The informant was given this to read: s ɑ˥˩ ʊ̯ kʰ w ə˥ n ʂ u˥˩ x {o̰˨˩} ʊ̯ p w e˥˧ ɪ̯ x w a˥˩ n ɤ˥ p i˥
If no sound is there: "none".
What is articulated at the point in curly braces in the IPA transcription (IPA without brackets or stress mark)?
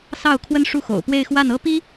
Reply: o̰˨˩